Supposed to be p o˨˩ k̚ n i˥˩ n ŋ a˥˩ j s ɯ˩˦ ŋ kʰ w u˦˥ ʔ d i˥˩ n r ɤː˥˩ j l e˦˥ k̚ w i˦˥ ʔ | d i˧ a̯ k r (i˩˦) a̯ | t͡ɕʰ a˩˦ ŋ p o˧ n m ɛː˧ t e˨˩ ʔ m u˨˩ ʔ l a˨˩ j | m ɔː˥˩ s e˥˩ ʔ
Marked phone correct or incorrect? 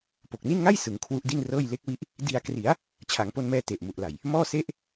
correct